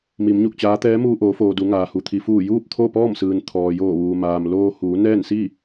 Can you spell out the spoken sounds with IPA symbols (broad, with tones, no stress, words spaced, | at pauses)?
mi˩˧mɲu˧˩k̚t͡ɕaː˧˥ t̪ɛː˧˥muː˧ʔoː˩˧foː˩ du˩˧ŋaː˩hu˩ t̪ʰi˩fuː˧˩juː˥˨p̚ t̪ʰo˥˨pɔː˥˨msɯː˩nt̪ʰɔː˩ joː˧˩ʋuː˩maː˩m loː˧ huː˩˧nɛː˥˨nsi˥˨